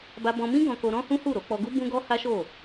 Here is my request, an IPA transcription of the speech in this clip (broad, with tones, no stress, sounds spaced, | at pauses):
b a˧ b ɔ̃˧ m ĩ˦ ɡ ɔ̃˧ k o˧ ɾ ɔ̃˦ h ũ˦ h u˦˨ ɾ o˨˦ k͡p ɔ˧ ɡ u˦ b ũ˦ ɡ ɔ˦ h a˦ ʃ o˦˨